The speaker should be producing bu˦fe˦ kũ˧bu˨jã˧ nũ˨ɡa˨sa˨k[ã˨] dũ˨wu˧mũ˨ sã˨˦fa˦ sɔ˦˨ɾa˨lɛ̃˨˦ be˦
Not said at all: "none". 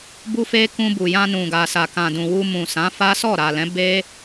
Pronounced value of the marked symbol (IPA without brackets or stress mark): ã˨